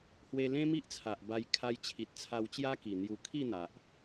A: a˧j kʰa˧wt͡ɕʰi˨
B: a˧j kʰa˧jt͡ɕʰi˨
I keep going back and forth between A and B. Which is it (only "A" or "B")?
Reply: B